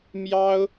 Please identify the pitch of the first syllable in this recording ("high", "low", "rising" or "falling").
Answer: high